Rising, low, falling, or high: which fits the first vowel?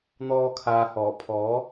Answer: high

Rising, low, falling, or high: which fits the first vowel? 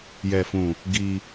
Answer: low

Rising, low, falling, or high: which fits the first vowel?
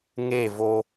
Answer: falling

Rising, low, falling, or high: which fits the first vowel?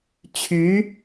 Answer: rising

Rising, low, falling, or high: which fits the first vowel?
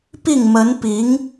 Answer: falling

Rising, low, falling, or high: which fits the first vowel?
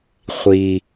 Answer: low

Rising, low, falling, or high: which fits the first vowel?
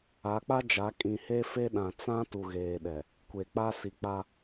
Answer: rising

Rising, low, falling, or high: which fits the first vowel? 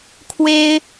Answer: high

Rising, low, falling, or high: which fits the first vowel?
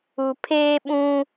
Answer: low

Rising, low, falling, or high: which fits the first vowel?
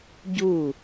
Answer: falling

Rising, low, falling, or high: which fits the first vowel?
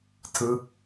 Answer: falling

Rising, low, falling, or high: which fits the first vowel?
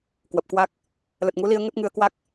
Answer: low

